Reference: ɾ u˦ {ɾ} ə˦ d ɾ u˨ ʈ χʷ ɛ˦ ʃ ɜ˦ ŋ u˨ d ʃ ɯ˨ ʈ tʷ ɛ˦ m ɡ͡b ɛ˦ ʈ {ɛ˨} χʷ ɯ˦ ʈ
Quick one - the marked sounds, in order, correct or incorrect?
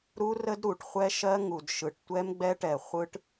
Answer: incorrect, correct

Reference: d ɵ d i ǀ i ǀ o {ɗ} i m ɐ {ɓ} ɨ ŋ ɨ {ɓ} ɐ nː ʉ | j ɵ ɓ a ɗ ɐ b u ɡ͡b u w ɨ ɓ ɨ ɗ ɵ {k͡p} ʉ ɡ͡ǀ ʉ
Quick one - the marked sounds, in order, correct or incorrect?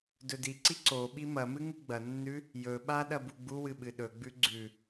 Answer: incorrect, incorrect, incorrect, incorrect

